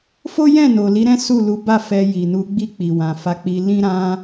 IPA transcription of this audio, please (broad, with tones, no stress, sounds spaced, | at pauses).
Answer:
f o˦ j ɛ̃˦˨ n o˨ l i˨˦ ɾ ɛ̃˦ s u˦˨ l u˨˦ b a˦˨ f ɛ˧ j i˨ n u˨˦ ɡ͡b i˦˨ k͡p i˨ w ã˨ f a˨˦ k͡p i˧ l ĩ˦ ɾ ã˦